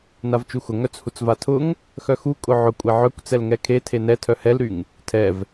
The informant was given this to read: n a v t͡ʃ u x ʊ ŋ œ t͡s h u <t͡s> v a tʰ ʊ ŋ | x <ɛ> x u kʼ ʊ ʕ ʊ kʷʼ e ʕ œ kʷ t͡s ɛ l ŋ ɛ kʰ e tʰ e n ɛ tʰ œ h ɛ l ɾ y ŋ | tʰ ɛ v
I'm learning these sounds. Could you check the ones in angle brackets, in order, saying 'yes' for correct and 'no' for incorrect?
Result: yes, no

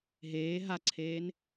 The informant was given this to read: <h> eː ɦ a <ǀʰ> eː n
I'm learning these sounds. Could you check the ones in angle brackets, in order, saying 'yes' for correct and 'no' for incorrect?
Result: no, yes

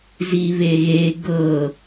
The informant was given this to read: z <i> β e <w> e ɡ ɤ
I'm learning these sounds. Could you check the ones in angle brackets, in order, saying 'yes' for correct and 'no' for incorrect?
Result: yes, no

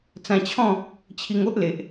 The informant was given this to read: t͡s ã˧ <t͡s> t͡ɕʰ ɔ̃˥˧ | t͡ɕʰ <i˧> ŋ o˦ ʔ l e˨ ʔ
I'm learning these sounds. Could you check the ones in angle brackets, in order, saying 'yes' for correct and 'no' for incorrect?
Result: no, yes

